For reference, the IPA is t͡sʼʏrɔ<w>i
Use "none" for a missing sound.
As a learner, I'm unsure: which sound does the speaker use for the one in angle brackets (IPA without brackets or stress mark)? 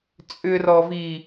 v